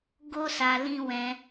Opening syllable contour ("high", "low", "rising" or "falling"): high